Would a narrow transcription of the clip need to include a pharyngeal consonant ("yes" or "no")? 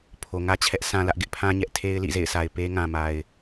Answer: no